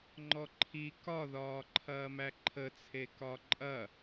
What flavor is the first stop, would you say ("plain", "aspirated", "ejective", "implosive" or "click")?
click